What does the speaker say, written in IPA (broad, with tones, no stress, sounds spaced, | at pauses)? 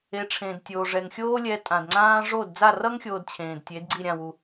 e˩˥ ʈ͡ʂʰ ẽ˩ d tʲ oː˩ ʐ ɛ˩ ŋ xʲ oː˥ lʲ ɛ˧ tʼ ã˩ d ŋ͡ǀ ãː˥ ʐ o˥˩ d d͡z a˥˩ r ʌ˥ ŋ xʲ oː˧ d t͡ɕʰ ẽː˩ d tʲ e˩˥ d ɡ͡ǀ i˥˩ ɾʲ ã˥˩ w u˩